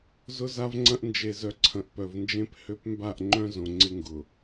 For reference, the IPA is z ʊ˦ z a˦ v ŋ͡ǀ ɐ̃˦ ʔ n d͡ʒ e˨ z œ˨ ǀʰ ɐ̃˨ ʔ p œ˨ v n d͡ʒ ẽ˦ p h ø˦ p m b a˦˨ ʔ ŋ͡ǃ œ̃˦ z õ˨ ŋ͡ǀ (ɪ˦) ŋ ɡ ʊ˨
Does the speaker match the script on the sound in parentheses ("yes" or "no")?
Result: yes